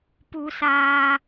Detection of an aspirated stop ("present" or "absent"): absent